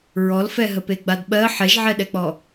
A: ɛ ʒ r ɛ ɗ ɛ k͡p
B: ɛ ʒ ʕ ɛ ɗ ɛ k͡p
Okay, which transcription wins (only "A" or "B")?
B